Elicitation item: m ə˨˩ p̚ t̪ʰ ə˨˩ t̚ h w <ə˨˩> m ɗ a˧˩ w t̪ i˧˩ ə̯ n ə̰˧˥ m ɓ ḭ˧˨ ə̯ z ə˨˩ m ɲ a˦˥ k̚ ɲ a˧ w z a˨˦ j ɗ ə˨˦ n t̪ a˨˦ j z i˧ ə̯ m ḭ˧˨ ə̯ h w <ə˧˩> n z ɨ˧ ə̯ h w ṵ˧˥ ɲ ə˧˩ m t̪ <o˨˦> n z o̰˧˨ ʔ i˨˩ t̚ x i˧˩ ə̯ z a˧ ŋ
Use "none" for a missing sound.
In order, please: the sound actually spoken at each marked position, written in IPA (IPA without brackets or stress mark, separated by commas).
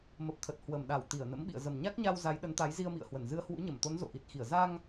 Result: ə˨˩, ə˧˩, o˨˦